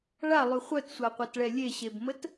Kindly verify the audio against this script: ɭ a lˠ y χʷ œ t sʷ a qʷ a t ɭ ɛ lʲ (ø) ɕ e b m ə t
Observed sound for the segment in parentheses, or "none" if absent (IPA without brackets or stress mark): e